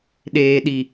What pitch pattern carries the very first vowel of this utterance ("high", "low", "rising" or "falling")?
low